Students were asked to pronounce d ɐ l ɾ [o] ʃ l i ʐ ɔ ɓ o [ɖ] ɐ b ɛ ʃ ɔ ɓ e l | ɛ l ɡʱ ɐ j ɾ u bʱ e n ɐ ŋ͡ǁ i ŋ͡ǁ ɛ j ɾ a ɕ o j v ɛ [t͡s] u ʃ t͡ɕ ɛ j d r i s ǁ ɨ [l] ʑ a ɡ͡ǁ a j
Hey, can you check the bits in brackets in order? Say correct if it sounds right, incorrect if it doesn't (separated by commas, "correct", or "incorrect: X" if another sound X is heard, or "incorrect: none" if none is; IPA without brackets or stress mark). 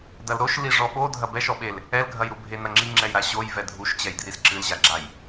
correct, incorrect: dʱ, incorrect: dʱ, correct